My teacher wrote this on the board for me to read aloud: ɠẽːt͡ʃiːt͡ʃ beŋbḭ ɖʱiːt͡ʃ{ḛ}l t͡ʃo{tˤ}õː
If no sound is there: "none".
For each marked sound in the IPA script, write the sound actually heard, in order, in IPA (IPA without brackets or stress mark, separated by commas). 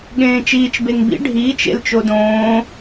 ḛ, d